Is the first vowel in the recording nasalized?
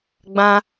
yes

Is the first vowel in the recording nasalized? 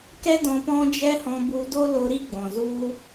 no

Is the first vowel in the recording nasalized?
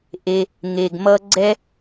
no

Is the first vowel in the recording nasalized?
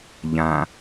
yes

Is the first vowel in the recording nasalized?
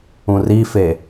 yes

